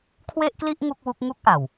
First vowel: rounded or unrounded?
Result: unrounded